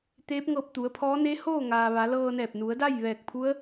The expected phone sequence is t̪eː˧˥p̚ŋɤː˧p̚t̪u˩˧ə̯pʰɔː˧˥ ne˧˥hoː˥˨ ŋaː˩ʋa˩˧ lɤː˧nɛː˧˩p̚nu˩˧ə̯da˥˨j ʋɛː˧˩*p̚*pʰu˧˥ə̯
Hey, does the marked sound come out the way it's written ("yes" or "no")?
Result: no